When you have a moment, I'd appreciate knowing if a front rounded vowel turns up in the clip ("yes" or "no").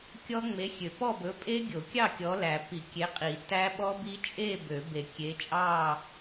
yes